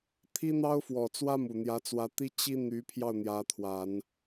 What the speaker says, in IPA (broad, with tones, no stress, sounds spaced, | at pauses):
t̪ʰ i˥ n̪ ɑ˥ ʊ̯ f w ɔ˨˩ t͡s w ä˥ m u˨˩ n̪ j ä˧˥ t͡s w ä˧˥ t̪ i˥ t͡ɕ i˥ n̪ y˧˥ pʰ j ɑ˥˩ ʊ̯ n̪ j ä˧˥ t̪ʰ w a˨˩˦ n